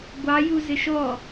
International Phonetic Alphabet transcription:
ɡʷ ɑ j u z ɪ ʃ ɔ

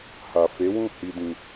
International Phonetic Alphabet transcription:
h a˨ f e˨˦ w ũ˦˨ h i˧ d ĩ˨

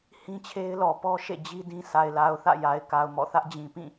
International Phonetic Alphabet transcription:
h ĩ˦ t͡ɕʰ e˦ ɪ̯ l ɔ˨ p ɔ˦ ʃ ḛ˦˨ d͡ʑ i˦ d ĩ˦ sʰ a˨ ɪ̯ l a˨ ʊ̯ θ ä̰˦˨ j a˨ ɪ̯ k a˨ ʊ̯ m ɔ̰˦˨ θ ä˦ ʔ d͡ʑ ĩ˨ p ĩ˦˨

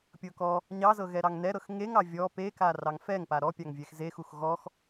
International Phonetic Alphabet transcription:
pʲ ɤ k ɔ | ɲ ɑ z ɤ ɣ ɛ ɾ ɑ ŋ n ɛ ɾ ɤ x ŋ e ŋ ɑ vʲ ɔ p e k a r ɑ ŋ f ɛ ŋ p a ɾ ɔ pʲ ɑ ŋ vʲ ɛ x z e x u x ɣ ɔ x

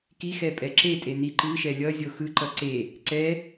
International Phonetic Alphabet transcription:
k i x ɛ pʼ ɛ ǁ e tʼ e n i ǃ ɯ ʃ ɛ lʲ ʌ zʲ o x ɯ ǃ ʌ ǀ e | ǀ ɛ

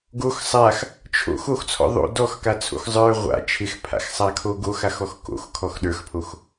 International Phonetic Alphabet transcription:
ɡ o x sˤ a x | t͡ʃʰ o̰ x o x t͡sʰ ɔ̰ ðˤ o̰ d ɔ x k a t͡sʰ o̰ x zˤ ə˞ ʁʷ a̰ t͡ʃʰ ɪ x pʰ a̰ x sˤ a kʰ o ɡ o x a x ɔ x k o̰ x kʰ ɔ x ɗ ə˞ x pʰ o x

